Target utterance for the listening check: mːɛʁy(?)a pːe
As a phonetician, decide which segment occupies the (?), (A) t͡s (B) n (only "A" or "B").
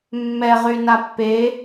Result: B